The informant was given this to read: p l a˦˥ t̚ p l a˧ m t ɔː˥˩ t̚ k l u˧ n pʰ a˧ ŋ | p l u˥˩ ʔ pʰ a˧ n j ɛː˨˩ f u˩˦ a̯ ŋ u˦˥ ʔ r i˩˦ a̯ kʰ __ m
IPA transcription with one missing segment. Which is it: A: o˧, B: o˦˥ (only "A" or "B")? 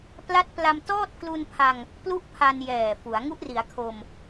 A